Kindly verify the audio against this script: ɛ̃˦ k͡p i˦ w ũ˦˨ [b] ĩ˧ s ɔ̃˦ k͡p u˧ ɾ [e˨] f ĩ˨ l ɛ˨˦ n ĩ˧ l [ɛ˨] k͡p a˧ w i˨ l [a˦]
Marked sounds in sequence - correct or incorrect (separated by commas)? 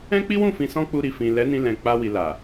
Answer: incorrect, incorrect, incorrect, incorrect